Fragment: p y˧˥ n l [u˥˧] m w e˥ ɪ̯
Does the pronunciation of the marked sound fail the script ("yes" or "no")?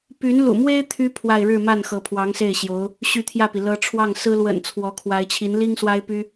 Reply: yes